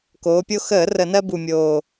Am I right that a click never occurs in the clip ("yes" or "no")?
yes